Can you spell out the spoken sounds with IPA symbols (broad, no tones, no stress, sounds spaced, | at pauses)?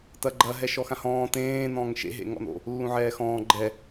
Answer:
t ɐ ɡ͡ǃ ɐ ɦ ɛ ʃ ɔ x ã h ɔ̃ː t ẽː n ɔ̃ː ŋ ʃ ḛ ɦ ḛ ŋ ɔ̰ n o̰ | lː ũ ʕ ɛː x ɔ̃ː ɡ͡ǃ ɛ